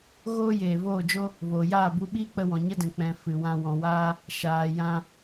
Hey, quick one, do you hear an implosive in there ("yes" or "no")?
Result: yes